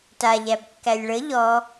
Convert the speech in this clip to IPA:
t a ʎ æ b kː æ lʲ ɭ ə ʎ ɔ

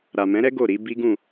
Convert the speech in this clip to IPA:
ɾ a˨ m ɛ̃˨˦ ɾ ɛ˦ ɡ o˦˨ ɾ i˨˦ b i˦ ɡ ũ˦˨

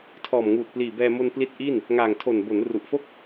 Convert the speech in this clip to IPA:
tʰ ɔː˨˩ m ŋ uː˨˩ t̚ p l iː˨˩ b ɛː˧ m o˧ n p l i˦˥ t̚ ʔ i˥˩ n | ŋ aː˨˩ ŋ tʰ o˨˩ n b o˩˦ n r u˨˩ ʔ f o˥˩ k̚

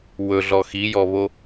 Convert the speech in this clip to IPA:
w ɵ ɮ ɔ x i j ɔ β o

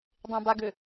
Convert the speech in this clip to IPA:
dˤ ẽ b a ɡ ø

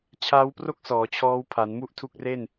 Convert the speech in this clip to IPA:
t͡ɕʰ aː˦˥ w p r o˥˩ k̚ s ɔː˩˦ t͡ɕʰ ɔː˦˥ w pʰ a˩˦ n m u˥˩ ʔ tʰ u˦˥ k̚ r e˥˩ n

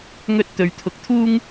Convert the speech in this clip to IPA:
ŋ ɵ˥ t̚ t̪ ɵ˨ ɥ t̪ʰ ʊ˨ k̚ t̪ʰ uː˥ ŋ

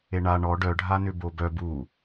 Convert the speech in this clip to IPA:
e ɳ a ɳ ɔ ɖ œ ɖʱ a n ʏ b o b œ b u

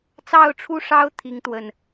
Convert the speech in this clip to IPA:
t͡s ɑ˥˧ ʊ̯ ʈ͡ʂʰ u˥˩ ʂ ɑ˥ ʊ̯ t̪ʰ i˥ ŋ t̪ w ə˥˩ n

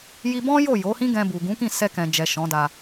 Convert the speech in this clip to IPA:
j i˧ b ɔ̃˦ j o˦˨ j o˨˦ h ĩ˦ ɡ ɛ̃˧ b u˨ ɡ ũ˨˦ k ĩ˦˨ s ɛ˧ k ɛ̃˨ d͡ʒ ɛ˨ ʃ ɔ̃˨˦ d a˧

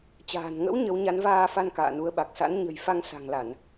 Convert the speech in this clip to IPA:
t͡ɕ a̤ː˨˩ n ŋ ə̰˧˥ w ɲ ə˨˦ w ɲ a˨˦ n v aː˧ f a˧ n k a̰ː˧˨ n u˨˦ ə̯ ɓ a˨˩ k̚ s a̰˧˥ n ɲ ə̤˨˩ j f a˧ ŋ s a̤˨˩ ŋ l a˧˩˨ n

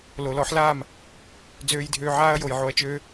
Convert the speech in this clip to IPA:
l o˨ l ɔ˨˦ ħ l aː˦˨ m | d͡z øː˧ j dʱ øː˧ ʕ aː˦ ɐ̯ j o˨ j ʕ o˧ ɐ̯ t͡ʃ øː˦

